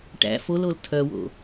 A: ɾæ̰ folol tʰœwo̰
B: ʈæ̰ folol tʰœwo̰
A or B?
B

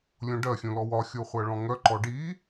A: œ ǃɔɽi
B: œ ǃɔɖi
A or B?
B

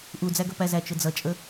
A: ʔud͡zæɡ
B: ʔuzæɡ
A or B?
A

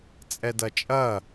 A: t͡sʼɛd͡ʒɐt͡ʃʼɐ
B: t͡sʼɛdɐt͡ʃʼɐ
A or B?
B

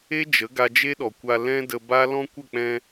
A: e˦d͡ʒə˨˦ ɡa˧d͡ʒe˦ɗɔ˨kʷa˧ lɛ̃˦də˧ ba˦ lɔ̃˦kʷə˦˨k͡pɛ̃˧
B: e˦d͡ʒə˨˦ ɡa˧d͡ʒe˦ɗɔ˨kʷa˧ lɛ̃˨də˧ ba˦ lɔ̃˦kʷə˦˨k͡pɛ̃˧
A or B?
A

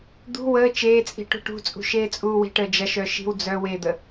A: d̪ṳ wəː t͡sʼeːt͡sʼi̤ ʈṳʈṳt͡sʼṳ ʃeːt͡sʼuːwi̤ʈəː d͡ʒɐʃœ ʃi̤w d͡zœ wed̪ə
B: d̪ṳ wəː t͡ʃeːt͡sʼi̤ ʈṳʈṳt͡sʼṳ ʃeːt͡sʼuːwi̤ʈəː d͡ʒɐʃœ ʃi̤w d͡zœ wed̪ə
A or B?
B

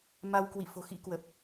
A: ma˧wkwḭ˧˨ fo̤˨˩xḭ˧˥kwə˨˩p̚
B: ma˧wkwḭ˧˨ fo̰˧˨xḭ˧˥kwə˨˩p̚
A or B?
A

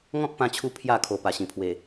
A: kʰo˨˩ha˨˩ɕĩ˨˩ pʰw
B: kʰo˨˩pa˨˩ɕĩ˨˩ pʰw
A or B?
B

